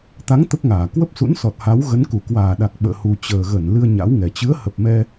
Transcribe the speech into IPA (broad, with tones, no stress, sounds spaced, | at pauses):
t̪ a˨˦ ŋ t̪ ə˦˥ p̚ ŋ aː˧˩ k w ə˦˥ p̚ s ṵ˧˥ n s ɔ˨˩ t̚ h a˨˦ w ɣ ə˨˦ n k u˧˩ k w aː˧˩ ɗ a˨˩ k̚ ɓ ə̰ː˧˨ h u˨˩ t͡ɕ əː˨˩ ɣ ə˧˩ n l ɨ˧ ə̯ ɲ a̰˧˥ w ŋ ɛ˨˩ t͡ɕ ɨ˨˦ ə̯ h ə˨˩ p̚ m ɛ˧